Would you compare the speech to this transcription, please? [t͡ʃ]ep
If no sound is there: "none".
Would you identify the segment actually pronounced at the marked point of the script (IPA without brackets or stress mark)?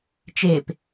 t͡ʃ